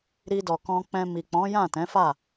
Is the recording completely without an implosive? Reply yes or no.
yes